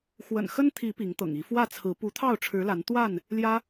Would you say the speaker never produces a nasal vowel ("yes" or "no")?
yes